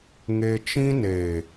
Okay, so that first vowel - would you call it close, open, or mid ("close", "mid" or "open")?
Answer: mid